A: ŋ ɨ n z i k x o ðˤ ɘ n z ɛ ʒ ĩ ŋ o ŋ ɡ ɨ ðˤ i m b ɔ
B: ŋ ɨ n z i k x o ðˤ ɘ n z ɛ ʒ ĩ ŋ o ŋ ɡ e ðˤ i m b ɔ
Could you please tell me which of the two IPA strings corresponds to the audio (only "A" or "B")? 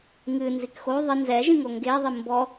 B